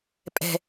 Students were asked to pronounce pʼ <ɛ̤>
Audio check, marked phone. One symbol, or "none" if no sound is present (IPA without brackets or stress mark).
ɛ̤